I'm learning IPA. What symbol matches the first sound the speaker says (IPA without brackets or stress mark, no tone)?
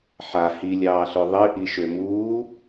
ħ